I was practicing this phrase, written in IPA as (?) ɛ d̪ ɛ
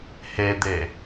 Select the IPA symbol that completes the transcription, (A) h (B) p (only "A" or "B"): A